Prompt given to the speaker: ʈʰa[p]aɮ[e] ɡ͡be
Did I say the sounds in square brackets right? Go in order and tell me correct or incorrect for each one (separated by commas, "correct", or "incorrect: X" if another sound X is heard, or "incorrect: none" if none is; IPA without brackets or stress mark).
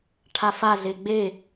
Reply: incorrect: f, correct